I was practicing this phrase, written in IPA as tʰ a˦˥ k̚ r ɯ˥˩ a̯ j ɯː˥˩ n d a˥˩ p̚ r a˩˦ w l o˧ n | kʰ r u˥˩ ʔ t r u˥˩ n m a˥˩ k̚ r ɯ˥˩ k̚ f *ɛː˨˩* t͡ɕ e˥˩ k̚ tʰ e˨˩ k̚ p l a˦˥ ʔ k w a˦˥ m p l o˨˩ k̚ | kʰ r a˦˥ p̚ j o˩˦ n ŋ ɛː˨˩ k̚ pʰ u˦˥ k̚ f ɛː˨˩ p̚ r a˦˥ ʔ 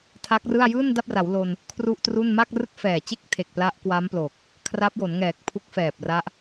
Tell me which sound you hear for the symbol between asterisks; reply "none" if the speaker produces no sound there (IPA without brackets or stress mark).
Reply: ɛː˨˩